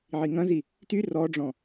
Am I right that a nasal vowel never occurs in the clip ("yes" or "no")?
no